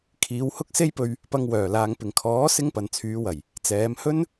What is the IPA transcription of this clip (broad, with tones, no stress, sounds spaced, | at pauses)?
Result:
kʰ iː˨˧ w h ʊ˥ k̚ s e˥ j p ɵ˧ ɥ | p ɐ˧ ŋ w œː˨˩ l aː˨ ŋ p ɪ˨˩ ŋ kʰ ɔː˨˥ s ɪ˥ ŋ p ɐ˨ n t͡sʰ yː˨˧ w ɐ˨˩ j | t͡s ɛː˨˧ m h ɵ˥ n